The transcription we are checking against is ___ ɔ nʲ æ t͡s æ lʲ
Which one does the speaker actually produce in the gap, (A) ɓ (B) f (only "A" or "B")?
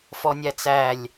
B